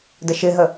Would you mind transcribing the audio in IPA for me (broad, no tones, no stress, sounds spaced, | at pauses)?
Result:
d ə ʃ ɪ ɦ ə